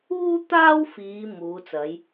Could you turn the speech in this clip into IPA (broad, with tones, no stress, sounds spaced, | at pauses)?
uː˥ t̪ aː˥ w f iː˨˧ m uː˨˧ t͡s ɐ˨˧ j